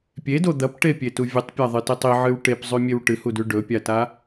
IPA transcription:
pʲ e d o d̪ ɐ p ʈ e pʲ e t u vʲ ɨ tˤ pʲ a ðˤ ɨ t e tˤ i ʕ ɨ w ʈ e p zˤ ʉ mʲ e w ʈ ɨ h u d ʉ ɖ ɵ pʲ a t a

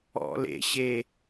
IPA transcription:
ɔ̰ l ḛ ɕ e

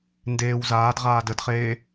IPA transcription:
n d eː w z aː d ʁ aː d ə d χ eː

